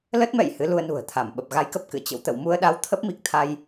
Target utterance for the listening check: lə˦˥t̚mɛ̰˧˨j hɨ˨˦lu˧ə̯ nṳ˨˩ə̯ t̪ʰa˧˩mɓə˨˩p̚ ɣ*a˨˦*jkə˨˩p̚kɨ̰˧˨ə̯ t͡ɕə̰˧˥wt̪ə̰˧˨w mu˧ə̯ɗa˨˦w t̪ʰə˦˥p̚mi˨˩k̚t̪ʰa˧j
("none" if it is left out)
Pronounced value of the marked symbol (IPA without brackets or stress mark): a˨˦